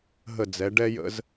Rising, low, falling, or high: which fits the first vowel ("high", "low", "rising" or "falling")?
falling